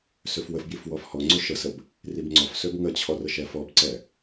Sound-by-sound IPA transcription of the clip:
søfwəfbjif wɔfhɔŋ͡ǀø ʃəsəb | ribŋ͡ǀɔfsøb ŋət͡ɕʰɔ rəʃɛfɔbǀɛ

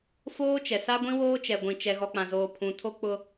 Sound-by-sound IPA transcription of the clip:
foː˦t͡ʃɛ˨ sa˦ɡʷĩ˦ woː˦t͡ʃɛ˨ɡʷĩ˨ t͡ʃɛ˨ɣɔ˨k͡pã˨zoː˨ pʰũ˨ tʰo˦k͡pʊ˦

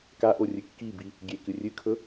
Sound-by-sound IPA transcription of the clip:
kaʔorʲɨ kːibi | ɡʲekɨ rʲɨkʰɵ

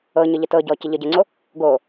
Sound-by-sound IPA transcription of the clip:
ɤɲə ʎətɤɟɔ cəʎəɟəŋ͡ǀo | ɡo

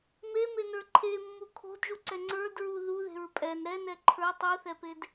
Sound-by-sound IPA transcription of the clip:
memenə˞ ǃʰemːu kʰo̤dʒuǀɛ ŋ͡ǀə˞dɹu ðuðe̤ɹ pʼɛn ɾɛnɛ ǃʰə˞ tˤuθɛped

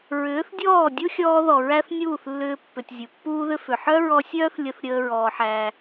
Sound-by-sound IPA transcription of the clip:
ɹʏː˨˦θdʲɔː˦˨ dʲu˦xʲɔː˧ðɔ˨ ɹæ˦θ nʲuː˦˨θlːʏː˧ pːʏ˨tʲ zʲu˨pːuː˦ðʏ˦ fʏ˨ħœ˦ɹɔ˧sʲœː˦θ lʲə˧θ ɾʲəː˧ ɹɔː˧ħæː˧

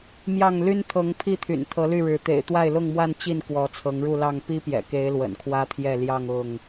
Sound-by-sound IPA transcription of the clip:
mjɑ˥˨ŋ ly˦nt̪ʰɤ˨˦ŋpʰi˥˨ t̪ʰy̰˨˩nt̪ʰɤ˨˦ly˥˨ɻɻ̩˨˦ t̪ḛ˨˩ɪ̯t̪wa˥˨ɪ̯lʊ˥˨ŋmwa˥˨n t͡ɕi˥˨n kwɔ˨˦t͡sʰɤ˨˦ŋɻu˥˨ lɑ˥˨ŋ pi˦ pjɛ̰˨˩ke˨˦ɪ̯ lwə̰˨˩nkʰwä˦t̪ʰjɛ˥˨ ljɑ˥˨ŋ ʊ˥˨ŋ

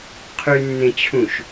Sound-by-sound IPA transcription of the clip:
qʰynːẽt͡ɕʰũʃ

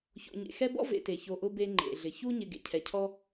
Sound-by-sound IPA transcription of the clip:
ço̰˨ɲḛ˨ xɛ˦bɔ̰˥ vḛ˨te˩ço˨ ʔʊ˥be˦ ŋ͡ǃḛ˩ɮɪ˩çu˦ɲɪ˨ ɡḛ˨cʰɛ˩cʰɔ˥

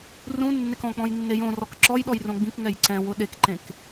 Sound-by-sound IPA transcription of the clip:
rũ nːekɔ̃k͡pɔ̃j nːejõ rɔkǁɔjɗɔj rõɡ͡bĩkŋɛj ǀɛ̃wʊ ɗekǃẽk

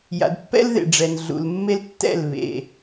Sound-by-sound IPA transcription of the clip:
ja̰˨dpːɛ̰˦l ðḛ˨ɖ͡ʐɛ˨n ɮṵ˨lmːe˦l tːɛ̰˦˨l βḛ˨

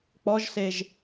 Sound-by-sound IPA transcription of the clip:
k͡pɔʒseʒ

